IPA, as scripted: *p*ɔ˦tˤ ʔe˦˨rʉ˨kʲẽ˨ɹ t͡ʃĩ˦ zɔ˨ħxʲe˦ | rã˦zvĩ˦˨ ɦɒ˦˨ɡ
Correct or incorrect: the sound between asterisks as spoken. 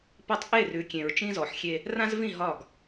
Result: correct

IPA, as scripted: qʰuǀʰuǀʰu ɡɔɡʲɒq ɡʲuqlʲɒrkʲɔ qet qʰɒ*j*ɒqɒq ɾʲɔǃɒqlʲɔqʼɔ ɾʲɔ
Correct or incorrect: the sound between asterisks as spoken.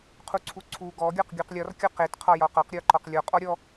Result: correct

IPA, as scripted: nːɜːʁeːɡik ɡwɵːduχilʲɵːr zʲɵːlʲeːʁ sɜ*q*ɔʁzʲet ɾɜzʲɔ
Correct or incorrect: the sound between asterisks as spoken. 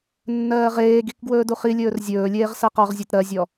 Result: correct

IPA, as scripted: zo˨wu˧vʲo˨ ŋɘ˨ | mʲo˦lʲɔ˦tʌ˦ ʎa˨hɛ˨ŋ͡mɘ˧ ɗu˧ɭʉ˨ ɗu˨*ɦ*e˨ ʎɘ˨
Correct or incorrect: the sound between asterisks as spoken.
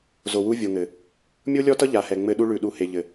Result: incorrect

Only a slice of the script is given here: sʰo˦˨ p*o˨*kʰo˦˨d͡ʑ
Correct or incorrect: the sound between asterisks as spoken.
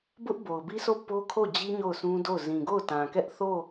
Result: incorrect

